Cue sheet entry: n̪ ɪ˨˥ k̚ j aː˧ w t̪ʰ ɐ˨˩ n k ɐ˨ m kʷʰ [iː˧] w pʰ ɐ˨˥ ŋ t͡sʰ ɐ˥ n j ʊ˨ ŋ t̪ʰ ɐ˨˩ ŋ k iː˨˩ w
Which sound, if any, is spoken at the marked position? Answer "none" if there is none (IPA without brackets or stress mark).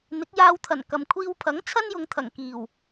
iː˧